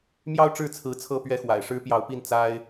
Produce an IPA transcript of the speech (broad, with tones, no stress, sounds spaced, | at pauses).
m j ɑ˥ ʊ̯ ʈ͡ʂ ɻ̩˥˩ t͡sʰ ɹ̩˧˥ t͡sʰ ɤ˥ p ɥ ɛ˥˩ x w a̰˨˩ ɪ̯ ʂ ɻ̩˥ p j ɑ˧˥ ʊ̯ p i˥˩ n t͡s a˥ ɪ̯